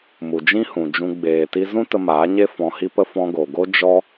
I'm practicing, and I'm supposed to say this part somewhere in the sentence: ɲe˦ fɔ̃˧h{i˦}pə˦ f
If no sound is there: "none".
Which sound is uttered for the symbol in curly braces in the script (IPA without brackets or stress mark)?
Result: i˦